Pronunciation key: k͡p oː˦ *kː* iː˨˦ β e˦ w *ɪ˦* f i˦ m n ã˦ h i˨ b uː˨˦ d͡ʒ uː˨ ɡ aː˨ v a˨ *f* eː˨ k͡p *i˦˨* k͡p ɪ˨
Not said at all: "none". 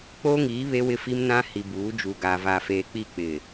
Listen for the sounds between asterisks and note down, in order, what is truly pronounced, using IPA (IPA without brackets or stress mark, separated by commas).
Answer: ŋ, ɪ˦, f, i˦˨